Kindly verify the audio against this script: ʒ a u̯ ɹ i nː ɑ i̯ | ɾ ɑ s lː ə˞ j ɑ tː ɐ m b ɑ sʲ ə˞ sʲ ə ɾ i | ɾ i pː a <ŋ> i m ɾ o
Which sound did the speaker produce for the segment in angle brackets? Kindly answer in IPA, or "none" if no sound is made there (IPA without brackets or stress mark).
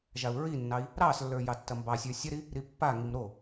ŋ